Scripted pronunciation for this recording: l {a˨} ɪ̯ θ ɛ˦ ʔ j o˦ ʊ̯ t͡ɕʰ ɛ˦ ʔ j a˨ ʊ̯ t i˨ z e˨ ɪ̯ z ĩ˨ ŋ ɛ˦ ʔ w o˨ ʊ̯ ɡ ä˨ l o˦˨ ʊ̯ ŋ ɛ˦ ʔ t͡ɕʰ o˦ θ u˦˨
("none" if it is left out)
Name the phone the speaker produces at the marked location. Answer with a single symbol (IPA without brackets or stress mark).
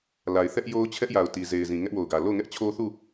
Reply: a˨